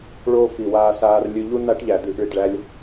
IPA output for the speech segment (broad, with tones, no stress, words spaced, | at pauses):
ɭoː˦ fi˨waː˧saː˧r lʲʉ˧ʎu˦ na˦ʈʎæ˨d̪ʉ˧ʔ ɭi˨ʈɭæ˦lʲ